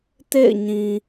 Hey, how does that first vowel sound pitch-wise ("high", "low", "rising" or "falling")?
falling